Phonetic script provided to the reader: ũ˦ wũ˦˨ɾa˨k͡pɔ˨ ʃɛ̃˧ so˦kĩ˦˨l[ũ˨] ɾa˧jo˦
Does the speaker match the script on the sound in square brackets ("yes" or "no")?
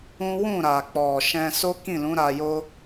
no